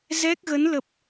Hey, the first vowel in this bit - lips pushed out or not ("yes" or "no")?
no